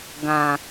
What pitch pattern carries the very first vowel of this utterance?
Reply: low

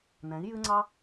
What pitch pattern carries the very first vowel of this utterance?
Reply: rising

